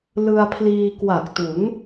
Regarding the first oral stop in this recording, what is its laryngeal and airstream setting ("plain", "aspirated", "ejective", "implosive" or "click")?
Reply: aspirated